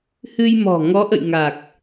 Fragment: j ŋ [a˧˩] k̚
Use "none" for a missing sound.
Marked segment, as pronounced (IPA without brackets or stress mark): a˨˩